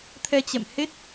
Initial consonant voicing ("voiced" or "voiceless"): voiceless